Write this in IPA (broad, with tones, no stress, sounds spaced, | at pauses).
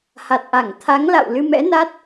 h a˨˩ t̚ ʔ a˧˩ ŋ t̪ʰ a˨˦ ŋ l a̰˧˨ w l ɨ˧ m ɛ̰˧˥ n a˦˥ t̚